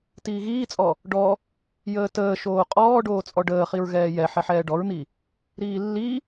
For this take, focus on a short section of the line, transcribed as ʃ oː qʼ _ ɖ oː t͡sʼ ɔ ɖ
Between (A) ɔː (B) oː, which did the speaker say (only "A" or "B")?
A